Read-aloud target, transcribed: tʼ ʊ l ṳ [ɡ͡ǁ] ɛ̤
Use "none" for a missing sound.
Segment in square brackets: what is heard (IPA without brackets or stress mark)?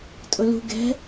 ɡ